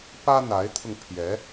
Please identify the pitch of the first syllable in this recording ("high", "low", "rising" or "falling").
high